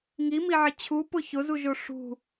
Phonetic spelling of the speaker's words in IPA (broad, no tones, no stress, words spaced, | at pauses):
ŋimiʕɪ t͡ɕʰupʊ çʊzuʒo ʂṳ